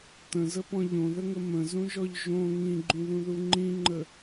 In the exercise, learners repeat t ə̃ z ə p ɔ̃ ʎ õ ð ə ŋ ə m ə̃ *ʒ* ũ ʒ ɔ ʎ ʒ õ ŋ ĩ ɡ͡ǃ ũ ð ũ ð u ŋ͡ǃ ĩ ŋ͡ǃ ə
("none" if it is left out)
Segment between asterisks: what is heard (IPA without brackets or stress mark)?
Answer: z